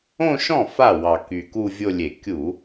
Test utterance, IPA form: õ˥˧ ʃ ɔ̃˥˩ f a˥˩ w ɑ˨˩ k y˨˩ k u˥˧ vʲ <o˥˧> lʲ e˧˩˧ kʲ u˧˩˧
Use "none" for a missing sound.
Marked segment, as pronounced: o˥˧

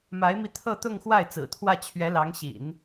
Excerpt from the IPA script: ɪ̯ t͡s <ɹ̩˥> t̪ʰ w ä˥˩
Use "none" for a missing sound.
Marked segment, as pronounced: ɹ̩˨˩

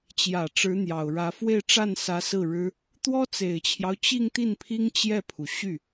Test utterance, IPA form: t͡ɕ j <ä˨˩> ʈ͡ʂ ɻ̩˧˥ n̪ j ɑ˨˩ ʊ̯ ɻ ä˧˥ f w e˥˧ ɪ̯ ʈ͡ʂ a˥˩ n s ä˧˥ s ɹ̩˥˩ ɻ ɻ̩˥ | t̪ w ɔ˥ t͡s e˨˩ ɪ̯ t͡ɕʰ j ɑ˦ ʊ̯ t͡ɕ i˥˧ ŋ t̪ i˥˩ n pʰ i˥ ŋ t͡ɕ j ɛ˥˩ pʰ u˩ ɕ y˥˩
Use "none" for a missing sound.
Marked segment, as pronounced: ä˨˩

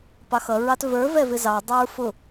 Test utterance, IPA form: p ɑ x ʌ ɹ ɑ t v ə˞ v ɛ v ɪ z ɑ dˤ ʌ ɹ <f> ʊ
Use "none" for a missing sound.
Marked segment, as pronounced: f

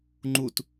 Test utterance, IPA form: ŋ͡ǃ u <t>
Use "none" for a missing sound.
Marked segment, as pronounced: t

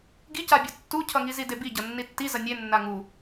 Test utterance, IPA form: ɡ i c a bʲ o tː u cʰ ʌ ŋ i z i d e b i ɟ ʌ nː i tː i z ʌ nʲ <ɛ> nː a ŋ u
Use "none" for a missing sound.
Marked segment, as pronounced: e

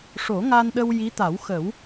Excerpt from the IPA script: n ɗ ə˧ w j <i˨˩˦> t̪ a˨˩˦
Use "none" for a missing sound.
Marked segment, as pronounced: i˧˥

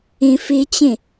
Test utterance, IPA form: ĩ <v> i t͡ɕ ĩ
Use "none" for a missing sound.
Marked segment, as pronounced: f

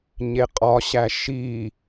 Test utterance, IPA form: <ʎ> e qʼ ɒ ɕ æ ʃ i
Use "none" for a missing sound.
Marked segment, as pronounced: ɲ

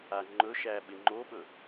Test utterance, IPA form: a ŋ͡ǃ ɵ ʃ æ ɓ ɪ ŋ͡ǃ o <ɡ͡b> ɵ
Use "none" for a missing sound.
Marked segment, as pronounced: ɓ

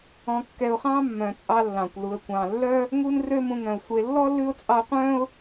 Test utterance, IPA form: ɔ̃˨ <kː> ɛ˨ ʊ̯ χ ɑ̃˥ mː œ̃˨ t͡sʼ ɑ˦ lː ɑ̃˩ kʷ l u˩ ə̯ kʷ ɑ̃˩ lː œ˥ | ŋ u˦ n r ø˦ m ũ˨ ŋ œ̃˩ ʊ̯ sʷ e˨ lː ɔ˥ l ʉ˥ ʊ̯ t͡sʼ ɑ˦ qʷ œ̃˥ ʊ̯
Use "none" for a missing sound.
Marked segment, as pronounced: kː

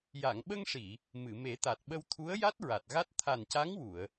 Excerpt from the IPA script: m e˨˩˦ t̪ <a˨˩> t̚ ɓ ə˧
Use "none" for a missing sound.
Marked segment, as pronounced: a˨˩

